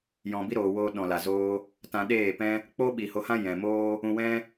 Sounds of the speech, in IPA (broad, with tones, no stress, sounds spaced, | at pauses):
j ɔ̃˨ b i˦ ɾ oː˨ w oː˧ ɗ ɔ̃˨ l a˨ z oː˦ | t ã˧ ɗ eː˦˨ p ɛ̃˦ | k͡p oː˦ ɓ i˨ h o˨˦ h ã˦ j ɛ̃˨ m oː˦ | ũ˧ w ɛ̃˦